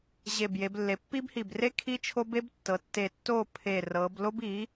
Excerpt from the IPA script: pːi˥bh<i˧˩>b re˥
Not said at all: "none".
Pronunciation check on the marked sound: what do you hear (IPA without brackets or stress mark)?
i˧˩